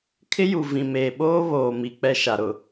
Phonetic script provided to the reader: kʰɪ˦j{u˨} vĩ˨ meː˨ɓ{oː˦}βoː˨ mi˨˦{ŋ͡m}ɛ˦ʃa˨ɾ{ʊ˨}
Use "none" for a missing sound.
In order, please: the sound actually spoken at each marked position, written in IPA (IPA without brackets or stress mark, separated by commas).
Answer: u˨, oː˦, k͡p, ʊ˨